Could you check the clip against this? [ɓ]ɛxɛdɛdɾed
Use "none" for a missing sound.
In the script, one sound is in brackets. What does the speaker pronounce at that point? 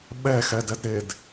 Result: ɓ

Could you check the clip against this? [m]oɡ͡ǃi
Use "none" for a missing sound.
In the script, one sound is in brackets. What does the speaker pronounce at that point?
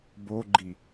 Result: b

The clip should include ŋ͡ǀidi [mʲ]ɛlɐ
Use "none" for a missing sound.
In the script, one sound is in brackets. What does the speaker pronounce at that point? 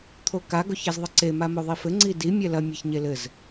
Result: mʲ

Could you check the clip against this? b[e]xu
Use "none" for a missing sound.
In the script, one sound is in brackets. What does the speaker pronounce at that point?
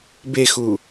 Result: e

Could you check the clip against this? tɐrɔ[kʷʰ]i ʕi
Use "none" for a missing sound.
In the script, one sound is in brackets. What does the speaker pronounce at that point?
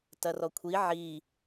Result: kʷʰ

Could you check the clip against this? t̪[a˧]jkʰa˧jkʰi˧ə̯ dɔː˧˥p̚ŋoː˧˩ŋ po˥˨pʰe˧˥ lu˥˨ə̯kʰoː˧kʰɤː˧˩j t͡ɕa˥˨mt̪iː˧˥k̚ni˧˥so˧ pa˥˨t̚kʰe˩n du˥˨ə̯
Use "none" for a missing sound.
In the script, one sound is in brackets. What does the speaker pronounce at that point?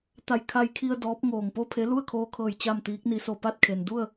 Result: a˧˩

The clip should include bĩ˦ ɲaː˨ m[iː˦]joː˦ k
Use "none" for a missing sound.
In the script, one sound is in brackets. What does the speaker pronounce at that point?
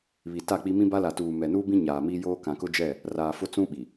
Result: iː˦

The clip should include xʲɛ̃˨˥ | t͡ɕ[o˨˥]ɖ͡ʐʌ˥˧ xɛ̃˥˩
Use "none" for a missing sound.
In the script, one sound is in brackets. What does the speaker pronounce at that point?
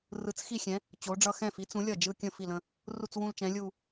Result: o˨˥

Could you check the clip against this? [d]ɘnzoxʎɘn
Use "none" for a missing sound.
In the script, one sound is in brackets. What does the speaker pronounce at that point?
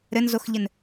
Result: ɾ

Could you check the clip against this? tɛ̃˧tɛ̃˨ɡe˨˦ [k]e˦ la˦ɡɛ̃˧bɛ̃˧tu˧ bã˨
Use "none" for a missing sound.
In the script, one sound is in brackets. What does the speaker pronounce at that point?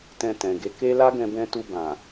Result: k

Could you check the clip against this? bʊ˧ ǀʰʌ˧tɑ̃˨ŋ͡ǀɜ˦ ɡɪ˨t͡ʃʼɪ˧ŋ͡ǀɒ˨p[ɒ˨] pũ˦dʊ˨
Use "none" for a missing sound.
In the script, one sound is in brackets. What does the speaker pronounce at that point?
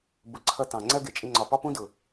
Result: ɒ˦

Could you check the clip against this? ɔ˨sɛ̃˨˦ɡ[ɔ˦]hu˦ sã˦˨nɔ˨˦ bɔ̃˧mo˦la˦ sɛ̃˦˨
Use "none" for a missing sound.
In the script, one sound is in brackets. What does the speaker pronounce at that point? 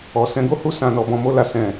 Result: o˦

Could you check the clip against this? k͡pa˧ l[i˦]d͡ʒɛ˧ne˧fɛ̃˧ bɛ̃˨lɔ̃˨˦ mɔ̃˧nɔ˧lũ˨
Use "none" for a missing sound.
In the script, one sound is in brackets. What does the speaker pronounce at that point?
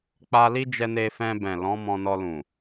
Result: i˦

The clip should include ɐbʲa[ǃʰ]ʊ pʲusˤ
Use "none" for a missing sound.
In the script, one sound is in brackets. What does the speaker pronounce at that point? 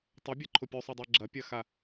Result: ǃʰ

